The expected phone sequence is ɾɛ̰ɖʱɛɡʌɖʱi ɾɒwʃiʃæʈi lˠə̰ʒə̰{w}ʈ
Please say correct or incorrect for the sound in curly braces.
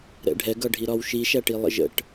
incorrect: none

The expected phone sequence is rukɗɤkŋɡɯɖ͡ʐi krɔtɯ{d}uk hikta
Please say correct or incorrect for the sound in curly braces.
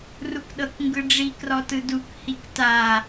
correct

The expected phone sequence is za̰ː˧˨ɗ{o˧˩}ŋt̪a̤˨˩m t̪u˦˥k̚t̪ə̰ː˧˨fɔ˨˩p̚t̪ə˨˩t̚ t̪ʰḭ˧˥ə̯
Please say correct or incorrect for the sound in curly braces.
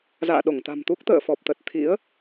correct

